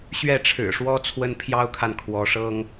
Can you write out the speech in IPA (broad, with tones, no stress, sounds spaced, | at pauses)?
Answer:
ɕ ɥ ɛ˥˩ ʈ͡ʂʰ ɻ̩˨˩ ʂ w ɔ˥ t͡sʰ w ə˥ n pʰ j ɑ˥ ʊ̯ kʰ a˨ n kʰ w ɔ˧˥ ʂ ɤ˥ ŋ